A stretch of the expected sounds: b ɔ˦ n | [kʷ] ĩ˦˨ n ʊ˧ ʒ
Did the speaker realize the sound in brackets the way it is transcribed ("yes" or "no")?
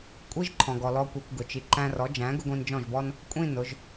no